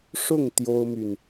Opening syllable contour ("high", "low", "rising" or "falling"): falling